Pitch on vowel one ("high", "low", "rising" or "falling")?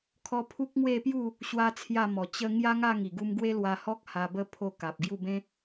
high